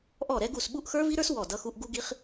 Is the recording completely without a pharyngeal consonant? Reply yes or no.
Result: yes